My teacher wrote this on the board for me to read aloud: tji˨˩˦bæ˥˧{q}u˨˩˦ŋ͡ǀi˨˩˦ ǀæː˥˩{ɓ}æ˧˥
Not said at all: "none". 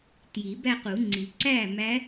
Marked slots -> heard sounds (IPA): q, m

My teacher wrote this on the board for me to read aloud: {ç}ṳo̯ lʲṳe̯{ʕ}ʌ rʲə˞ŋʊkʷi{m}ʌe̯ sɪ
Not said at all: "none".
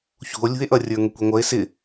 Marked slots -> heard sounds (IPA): ç, ʔ, ŋʷ

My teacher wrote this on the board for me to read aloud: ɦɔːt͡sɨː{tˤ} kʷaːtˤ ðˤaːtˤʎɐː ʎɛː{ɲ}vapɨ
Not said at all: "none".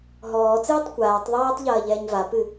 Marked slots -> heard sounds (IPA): tˤ, ɲ

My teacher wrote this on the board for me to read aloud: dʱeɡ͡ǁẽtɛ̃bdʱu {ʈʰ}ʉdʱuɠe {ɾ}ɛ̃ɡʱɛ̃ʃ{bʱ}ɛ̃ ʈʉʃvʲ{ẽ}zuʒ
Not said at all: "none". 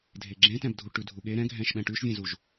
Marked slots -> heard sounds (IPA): ʈ, ɾ, ɓ, ẽ

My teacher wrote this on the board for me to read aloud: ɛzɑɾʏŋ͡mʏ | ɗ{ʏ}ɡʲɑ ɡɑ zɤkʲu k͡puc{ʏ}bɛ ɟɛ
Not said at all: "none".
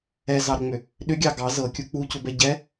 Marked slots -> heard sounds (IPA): ʏ, ʏ

